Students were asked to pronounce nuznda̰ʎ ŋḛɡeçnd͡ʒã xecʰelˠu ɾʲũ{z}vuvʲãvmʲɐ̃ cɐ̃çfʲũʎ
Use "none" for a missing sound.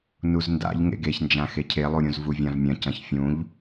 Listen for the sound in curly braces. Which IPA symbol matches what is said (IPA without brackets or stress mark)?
z